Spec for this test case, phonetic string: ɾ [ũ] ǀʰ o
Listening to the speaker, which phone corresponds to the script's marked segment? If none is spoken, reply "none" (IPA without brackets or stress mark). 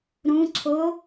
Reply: ũ